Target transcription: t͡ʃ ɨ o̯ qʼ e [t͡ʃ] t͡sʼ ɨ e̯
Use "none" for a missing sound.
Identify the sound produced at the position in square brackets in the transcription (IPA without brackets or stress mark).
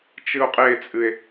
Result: none